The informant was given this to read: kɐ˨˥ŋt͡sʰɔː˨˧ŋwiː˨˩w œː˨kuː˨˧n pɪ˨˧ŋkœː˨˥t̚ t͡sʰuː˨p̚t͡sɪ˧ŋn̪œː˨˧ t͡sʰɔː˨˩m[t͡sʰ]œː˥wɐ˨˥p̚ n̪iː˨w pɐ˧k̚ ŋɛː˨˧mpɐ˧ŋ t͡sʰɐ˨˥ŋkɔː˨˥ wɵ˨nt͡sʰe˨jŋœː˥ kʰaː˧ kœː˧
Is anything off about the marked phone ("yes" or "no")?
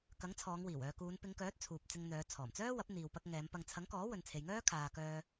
yes